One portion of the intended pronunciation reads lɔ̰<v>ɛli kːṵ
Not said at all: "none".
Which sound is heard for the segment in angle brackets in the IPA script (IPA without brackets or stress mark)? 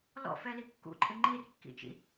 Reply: f